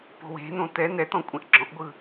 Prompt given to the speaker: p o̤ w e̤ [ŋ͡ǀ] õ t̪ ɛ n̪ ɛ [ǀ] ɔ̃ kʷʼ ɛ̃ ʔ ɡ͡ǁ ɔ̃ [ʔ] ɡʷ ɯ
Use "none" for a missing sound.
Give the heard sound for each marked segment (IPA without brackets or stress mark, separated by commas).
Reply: n̪, t̪, ʔ